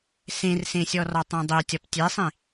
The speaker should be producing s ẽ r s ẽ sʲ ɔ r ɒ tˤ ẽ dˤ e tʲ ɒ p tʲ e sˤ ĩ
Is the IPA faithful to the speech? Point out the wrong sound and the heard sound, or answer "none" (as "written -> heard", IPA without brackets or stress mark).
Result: none